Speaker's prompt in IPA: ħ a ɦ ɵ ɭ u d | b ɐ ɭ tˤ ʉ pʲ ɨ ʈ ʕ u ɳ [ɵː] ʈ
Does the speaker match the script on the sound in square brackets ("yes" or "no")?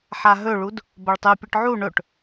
no